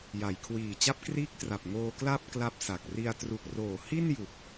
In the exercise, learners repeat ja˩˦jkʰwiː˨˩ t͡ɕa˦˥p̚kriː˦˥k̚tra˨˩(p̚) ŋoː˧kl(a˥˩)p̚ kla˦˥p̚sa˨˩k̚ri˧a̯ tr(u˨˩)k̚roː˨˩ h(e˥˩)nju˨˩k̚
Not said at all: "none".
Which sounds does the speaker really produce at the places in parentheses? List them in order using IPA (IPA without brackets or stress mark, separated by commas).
p̚, a˥˩, u˨˩, i˥˩